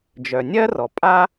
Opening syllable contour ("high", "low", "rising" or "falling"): low